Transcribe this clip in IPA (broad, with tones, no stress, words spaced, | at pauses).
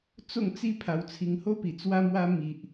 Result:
t͡so˥˧ŋt͡si˥˧ pʰa˧wt͡sʰi˧ŋho˦pi˨˩ t͡swa˧mwa˧ mi˨ʔ